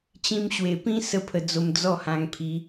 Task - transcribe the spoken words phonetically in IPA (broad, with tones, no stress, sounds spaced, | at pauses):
t͡ɕ ĩ˧ m ɕ w e˨˩ p ĩ˦ s ə˦ pʰ ə˧ d͡z o˧ m d͡z ɔ˥˧ h ã˧ ŋ pʰ i˧